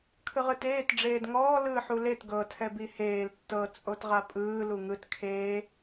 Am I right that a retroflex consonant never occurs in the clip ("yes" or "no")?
no